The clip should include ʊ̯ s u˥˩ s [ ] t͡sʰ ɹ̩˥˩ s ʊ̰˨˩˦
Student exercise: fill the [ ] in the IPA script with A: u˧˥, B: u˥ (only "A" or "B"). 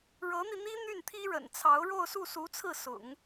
A